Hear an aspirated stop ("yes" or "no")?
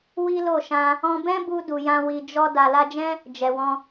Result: no